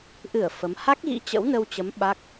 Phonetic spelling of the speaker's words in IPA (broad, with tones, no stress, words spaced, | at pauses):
ʔɨ˧˩ə̯ fə˨˦m ha˦˥k̚ɣḭ˧˥ t͡ɕə̰˧˥wnə˧wt͡ɕə˨˦m ɓa˦˥k̚